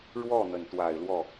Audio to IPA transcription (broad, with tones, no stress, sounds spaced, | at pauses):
ɻ w ɔ˥˩ n̪ ə˩ n t̪ w a˨˩ ɪ̯ l w ɔ˥˩